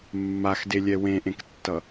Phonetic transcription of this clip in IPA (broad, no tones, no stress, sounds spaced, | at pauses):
mː a x d e lʲ ɛ w ẽ ʔ ẽ k tː ʌ